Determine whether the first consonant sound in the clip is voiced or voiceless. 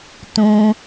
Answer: voiceless